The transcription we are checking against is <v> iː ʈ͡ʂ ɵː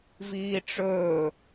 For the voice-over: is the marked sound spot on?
yes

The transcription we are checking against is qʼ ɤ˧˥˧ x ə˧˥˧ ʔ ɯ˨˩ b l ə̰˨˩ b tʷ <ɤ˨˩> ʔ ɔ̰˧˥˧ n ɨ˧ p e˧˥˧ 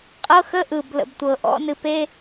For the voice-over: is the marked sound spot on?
yes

